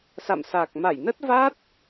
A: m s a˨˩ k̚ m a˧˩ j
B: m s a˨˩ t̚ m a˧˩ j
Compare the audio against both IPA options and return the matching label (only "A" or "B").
A